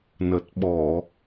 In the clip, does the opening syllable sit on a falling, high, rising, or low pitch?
low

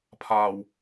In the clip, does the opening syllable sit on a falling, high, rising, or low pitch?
low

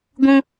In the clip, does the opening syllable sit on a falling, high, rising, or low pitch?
high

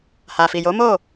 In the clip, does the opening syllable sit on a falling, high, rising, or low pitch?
low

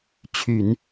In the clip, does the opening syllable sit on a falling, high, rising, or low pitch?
low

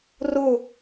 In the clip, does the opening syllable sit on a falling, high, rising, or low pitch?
falling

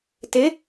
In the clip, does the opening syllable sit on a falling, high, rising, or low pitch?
rising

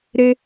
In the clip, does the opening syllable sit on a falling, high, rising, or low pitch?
high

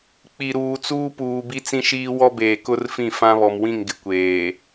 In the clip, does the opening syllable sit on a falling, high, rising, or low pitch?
low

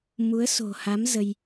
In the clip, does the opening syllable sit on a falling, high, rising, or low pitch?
rising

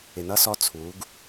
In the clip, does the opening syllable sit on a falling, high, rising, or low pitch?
low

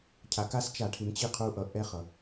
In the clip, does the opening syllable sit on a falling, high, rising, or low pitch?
low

